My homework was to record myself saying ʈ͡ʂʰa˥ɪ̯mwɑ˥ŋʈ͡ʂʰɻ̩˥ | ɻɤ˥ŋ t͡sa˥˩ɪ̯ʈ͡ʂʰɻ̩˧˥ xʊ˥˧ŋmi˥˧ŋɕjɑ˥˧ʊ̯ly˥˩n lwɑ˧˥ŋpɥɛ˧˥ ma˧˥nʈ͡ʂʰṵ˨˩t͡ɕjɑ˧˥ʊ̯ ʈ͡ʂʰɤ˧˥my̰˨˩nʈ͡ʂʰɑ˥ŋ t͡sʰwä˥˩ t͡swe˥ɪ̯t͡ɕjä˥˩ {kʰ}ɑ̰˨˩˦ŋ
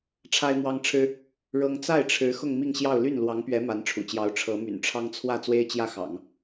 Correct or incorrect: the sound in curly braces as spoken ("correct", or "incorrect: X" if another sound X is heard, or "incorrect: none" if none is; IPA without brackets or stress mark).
incorrect: x